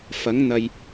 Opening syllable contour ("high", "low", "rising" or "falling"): rising